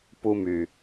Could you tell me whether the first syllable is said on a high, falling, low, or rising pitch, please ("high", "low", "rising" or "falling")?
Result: high